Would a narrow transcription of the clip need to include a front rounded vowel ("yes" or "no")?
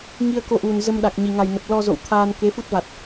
no